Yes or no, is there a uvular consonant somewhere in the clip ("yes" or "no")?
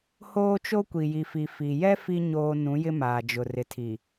no